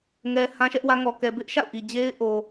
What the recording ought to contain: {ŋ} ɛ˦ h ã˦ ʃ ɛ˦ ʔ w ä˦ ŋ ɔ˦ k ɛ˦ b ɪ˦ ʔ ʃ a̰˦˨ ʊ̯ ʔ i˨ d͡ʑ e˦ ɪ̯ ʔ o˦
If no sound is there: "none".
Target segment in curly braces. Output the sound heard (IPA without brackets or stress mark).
ŋ